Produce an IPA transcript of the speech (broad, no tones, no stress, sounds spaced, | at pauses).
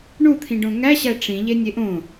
ɳ u t̪ʰ ĩ ɖ õ ŋ æ ɕ æ ʈ͡ʂ ĩ ʎ e nʲ e ʔ õ